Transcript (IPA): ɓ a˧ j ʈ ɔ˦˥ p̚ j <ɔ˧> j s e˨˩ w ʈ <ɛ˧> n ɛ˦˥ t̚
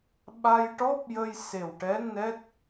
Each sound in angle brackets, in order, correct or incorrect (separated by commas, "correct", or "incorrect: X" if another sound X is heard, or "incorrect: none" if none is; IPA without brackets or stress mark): incorrect: ə˧, incorrect: ɛ˧˥